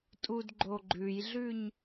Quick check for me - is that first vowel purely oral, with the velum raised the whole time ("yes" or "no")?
yes